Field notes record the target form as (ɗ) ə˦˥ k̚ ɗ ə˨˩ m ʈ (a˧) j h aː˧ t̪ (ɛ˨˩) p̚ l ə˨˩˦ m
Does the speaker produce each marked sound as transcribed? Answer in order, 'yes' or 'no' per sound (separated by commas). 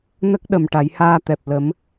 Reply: no, no, yes